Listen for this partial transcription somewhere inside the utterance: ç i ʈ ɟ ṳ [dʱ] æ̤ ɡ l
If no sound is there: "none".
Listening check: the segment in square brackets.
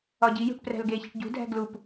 dʱ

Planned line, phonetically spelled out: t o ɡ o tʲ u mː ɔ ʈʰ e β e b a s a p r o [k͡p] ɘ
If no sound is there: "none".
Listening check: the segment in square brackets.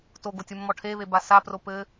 p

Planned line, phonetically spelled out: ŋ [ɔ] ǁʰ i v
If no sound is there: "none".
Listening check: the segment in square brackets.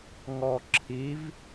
ɔ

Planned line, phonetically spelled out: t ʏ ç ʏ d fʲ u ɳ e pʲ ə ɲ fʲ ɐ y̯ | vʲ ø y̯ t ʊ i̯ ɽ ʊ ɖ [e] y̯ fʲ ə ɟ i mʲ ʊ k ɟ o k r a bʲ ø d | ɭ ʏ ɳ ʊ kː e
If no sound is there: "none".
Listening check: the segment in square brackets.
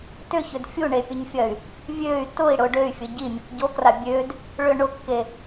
ø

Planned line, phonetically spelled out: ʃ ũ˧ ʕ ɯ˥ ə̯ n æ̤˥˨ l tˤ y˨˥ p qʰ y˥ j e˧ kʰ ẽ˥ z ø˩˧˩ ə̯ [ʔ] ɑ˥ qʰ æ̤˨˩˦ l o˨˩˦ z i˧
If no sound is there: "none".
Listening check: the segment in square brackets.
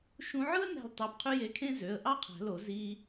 ʔ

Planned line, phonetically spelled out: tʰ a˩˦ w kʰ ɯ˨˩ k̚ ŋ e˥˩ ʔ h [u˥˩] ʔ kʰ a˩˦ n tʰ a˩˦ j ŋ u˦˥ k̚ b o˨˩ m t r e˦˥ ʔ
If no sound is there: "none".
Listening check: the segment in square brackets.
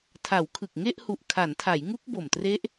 u˨˩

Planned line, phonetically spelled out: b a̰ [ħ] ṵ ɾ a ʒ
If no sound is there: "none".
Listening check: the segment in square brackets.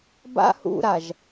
h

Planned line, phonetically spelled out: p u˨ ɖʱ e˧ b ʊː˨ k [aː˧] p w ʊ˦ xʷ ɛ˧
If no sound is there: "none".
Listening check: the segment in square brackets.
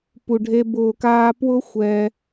aː˧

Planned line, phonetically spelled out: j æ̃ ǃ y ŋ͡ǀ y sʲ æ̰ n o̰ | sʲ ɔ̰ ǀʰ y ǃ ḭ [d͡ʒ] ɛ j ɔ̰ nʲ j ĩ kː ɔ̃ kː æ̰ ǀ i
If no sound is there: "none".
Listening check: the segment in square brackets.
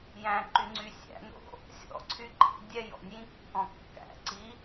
dʲ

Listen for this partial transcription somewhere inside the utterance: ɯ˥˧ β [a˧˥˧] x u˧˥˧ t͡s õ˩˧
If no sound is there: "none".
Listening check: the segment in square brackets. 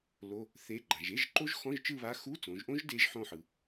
a˧˥˧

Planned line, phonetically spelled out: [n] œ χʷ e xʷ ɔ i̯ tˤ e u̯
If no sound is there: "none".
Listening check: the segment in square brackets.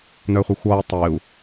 n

